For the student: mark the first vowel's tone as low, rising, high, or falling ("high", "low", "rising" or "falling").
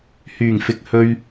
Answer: low